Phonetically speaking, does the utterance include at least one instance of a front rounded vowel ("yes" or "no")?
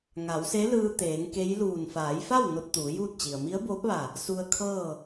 no